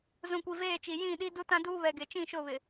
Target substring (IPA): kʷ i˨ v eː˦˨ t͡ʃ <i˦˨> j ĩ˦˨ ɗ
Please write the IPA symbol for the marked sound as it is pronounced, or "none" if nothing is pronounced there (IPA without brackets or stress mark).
i˨